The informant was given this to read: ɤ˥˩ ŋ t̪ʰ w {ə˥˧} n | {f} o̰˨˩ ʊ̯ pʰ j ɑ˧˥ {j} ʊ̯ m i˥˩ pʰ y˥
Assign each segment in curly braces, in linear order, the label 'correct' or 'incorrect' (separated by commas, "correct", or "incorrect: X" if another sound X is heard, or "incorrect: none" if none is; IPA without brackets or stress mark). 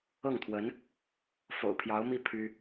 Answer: incorrect: ə˧˥, correct, incorrect: none